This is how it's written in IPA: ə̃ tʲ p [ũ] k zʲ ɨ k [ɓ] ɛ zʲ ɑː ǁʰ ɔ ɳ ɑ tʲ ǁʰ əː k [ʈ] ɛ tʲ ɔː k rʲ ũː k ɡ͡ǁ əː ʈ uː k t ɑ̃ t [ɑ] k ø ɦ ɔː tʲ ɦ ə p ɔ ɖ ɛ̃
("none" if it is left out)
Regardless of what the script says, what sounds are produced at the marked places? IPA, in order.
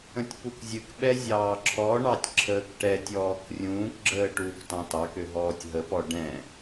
u, ɓ, ʈ, ɑ

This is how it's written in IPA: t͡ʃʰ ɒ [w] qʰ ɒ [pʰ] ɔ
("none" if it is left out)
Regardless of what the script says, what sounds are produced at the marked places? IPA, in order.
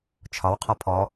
w, pʰ

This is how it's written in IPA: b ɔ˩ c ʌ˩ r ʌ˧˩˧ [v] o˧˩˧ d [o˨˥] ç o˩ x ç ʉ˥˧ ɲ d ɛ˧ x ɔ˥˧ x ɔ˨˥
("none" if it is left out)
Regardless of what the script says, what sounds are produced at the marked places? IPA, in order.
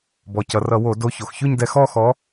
w, o˨˥

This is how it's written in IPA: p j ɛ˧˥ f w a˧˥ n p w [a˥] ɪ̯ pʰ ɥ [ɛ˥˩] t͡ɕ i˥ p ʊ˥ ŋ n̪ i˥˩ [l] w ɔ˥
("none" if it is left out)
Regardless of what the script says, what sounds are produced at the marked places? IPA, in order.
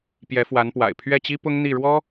a̰˨˩, ɛ˥˩, ɻ

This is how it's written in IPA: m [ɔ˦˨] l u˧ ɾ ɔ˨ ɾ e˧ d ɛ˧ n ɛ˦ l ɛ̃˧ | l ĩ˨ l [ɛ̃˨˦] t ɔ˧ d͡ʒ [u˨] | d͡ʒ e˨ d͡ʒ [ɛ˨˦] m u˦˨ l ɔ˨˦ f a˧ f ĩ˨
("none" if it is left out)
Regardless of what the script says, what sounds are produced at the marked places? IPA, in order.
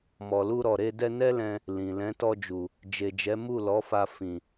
ɔ˨, ɛ̃˨˦, u˨, ɛ˨˦

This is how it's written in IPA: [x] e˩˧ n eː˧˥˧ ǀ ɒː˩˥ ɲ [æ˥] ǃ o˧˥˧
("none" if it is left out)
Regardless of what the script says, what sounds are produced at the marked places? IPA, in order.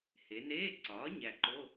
h, æ˨˩

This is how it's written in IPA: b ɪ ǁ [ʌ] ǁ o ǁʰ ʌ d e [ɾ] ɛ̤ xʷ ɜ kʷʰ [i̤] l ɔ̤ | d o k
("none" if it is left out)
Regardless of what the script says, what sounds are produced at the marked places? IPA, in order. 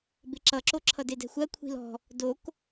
ʌ, d, i̤

